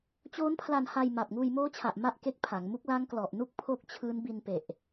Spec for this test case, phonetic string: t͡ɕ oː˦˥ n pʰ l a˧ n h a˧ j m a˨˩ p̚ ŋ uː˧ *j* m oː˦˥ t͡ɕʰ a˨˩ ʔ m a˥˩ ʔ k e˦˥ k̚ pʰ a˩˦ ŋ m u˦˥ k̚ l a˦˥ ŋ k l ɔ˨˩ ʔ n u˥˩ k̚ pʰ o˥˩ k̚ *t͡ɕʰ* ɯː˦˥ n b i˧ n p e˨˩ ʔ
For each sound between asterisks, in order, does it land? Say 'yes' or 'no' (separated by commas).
yes, yes